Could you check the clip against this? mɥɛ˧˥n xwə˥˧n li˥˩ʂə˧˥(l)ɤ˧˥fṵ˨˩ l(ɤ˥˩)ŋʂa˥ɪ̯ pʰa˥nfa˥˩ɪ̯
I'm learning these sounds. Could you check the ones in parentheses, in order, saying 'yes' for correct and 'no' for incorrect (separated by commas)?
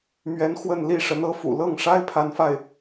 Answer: no, yes